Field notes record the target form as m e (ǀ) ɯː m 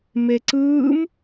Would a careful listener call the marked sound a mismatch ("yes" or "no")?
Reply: no